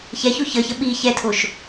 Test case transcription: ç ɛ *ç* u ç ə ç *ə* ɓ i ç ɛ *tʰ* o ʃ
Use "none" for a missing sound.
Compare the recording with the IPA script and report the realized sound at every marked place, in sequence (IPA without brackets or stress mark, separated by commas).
ç, ə, tʰ